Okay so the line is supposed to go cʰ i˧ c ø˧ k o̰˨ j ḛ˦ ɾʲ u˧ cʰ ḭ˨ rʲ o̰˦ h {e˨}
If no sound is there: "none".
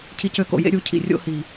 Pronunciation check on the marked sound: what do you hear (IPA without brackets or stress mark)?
i˨